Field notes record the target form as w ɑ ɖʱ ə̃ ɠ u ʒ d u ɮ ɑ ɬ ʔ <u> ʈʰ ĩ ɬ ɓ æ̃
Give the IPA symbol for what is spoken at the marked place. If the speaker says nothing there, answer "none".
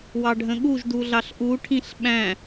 u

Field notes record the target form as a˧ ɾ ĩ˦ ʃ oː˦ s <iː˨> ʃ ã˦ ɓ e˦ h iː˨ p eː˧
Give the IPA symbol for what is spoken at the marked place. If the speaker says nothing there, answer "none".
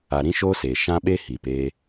eː˨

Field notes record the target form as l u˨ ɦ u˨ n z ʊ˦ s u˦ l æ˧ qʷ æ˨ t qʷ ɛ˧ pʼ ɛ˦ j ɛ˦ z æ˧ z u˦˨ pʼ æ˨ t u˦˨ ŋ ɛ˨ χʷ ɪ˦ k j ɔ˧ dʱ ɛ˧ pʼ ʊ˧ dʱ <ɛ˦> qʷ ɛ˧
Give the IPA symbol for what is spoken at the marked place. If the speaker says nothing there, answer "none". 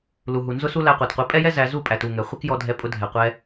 ɛ˨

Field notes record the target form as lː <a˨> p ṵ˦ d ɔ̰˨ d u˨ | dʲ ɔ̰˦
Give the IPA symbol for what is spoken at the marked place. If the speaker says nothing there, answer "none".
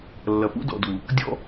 ɐ˨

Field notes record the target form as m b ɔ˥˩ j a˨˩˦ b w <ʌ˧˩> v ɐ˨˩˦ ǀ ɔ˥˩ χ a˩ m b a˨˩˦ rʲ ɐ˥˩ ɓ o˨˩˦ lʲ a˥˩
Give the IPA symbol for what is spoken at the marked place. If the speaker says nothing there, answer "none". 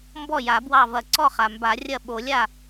ɑ˧˩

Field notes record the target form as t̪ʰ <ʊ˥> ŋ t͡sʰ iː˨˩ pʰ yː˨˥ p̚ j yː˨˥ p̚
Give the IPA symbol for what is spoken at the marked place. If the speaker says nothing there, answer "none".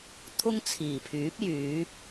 ʊ˥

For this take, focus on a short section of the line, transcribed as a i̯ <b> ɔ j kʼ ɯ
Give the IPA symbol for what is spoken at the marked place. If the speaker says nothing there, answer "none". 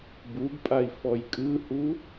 f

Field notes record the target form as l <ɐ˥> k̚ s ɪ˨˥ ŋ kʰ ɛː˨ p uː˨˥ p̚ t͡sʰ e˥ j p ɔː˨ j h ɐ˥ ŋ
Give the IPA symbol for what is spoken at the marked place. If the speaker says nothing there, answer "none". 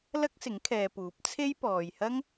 ɐ˥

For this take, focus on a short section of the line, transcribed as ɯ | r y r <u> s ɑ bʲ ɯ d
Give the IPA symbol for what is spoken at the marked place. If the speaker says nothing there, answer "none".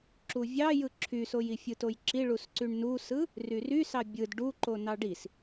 y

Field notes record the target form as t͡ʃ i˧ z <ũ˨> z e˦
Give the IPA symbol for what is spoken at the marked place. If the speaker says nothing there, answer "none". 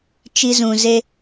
ũ˨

